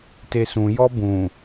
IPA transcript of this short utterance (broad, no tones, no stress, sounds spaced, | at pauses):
t e s ũ j ɔ b ũ